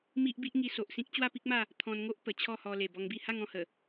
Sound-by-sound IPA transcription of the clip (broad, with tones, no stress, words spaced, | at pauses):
mi˦ʔbi˦ʔŋi˧ so˨ʔsĩ˦k̚ t͡ɕwa˥˧pi˦k̚ma˥˧ | t̪ʰɔ̃˧nŋo˦ʔ pə˨˩t͡ɕʰɔ˥˧hɔ˧ le˨˩bɔ˧ŋbi˥˧ ha˥˧ŋɔ̃˧hə˨˩